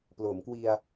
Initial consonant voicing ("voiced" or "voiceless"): voiceless